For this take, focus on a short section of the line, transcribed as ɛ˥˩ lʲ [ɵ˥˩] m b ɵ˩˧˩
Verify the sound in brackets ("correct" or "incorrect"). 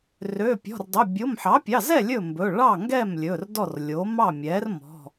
correct